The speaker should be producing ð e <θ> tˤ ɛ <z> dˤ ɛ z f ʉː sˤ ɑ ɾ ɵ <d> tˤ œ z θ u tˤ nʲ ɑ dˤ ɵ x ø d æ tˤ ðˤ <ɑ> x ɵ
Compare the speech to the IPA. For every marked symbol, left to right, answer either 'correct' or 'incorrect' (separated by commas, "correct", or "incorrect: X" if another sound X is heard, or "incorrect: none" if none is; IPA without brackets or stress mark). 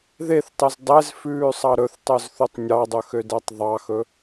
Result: correct, correct, incorrect: θ, correct